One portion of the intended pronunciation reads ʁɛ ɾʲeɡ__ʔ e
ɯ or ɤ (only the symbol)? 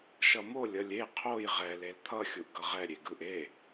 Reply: ɯ